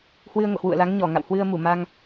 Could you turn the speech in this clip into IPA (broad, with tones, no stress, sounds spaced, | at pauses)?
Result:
h w ɨ˧ ə̯ ŋ o̰˧˨ h w ṵ˧˨ ə̯ l a˨˦ ŋ ɲ ɔ˧˩ ŋ a̰˧˨ w h w ɨ˧ ə̯ m u˧˩ m a˧ ŋ